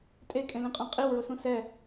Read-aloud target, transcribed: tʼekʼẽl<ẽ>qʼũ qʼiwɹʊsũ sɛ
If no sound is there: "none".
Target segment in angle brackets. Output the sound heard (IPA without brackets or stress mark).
ĩ